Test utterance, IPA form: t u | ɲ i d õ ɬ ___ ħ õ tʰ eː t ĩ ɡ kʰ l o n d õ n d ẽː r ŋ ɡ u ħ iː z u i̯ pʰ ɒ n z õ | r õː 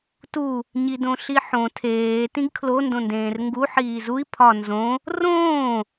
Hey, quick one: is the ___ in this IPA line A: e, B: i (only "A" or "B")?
B